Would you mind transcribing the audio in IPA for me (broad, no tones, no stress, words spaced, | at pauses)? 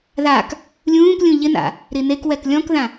ðak | lʲũːklʲũ ʎɪna̰ | ɾinekwɛk lʲɔ̃kðã